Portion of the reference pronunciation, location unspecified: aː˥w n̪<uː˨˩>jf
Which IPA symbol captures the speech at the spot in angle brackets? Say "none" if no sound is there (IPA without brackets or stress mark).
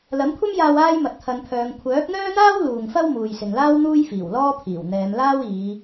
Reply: uː˥